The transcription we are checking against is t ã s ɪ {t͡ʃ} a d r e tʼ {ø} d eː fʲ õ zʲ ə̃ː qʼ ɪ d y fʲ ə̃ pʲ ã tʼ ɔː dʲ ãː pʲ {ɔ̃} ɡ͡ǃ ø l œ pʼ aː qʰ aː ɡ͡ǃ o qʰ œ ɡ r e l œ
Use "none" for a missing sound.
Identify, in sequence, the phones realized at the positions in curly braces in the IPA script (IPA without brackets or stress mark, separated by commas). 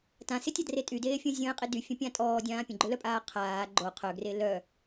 tʲ, y, ə̃